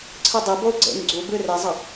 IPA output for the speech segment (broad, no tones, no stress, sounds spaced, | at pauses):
ǀʰ ɯ dˤ i b o u̯ ɡ͡ǀ ḛ ŋ ɡ͡ǀ u b ɯ r e zˤ ʌ